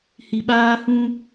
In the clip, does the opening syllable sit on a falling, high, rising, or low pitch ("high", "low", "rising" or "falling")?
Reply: low